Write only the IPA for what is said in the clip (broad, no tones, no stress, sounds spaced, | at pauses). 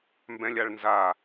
m b ɛ̃ lʲ a ɭ n z a